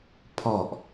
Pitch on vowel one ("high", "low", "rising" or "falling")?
low